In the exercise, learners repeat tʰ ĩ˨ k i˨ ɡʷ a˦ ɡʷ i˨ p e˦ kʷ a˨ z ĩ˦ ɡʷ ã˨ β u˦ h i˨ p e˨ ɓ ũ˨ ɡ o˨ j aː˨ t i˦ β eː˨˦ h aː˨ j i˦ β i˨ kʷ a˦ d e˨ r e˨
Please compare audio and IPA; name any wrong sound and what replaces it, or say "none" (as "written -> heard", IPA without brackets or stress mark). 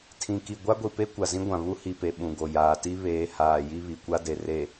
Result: none